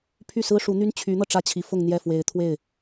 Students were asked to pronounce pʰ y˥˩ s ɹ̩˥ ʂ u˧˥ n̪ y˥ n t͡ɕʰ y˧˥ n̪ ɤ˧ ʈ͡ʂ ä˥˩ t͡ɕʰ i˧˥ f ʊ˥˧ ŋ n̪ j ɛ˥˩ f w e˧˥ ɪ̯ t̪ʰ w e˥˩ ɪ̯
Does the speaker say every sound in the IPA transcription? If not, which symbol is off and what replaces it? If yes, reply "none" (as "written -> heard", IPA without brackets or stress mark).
none